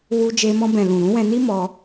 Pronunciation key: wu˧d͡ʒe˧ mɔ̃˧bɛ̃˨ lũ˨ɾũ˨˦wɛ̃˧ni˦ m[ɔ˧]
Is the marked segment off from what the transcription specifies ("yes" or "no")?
no